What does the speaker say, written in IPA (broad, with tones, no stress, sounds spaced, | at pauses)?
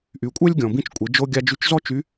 ʔ y˩ kʷʼ ɛ˥ lʲ ɡʲ ɔ̃˩ b ĩ˧ t͡ʃ kʷʼ e˩˧ d͡ʒ o˧ ɡʲ a˧ d͡ʒ y˧ t͡ʃ z ɔ˥ t͡ʃ y˧˥